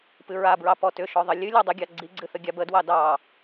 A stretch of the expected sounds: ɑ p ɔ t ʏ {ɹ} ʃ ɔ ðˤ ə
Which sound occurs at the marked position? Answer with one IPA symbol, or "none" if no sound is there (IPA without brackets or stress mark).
none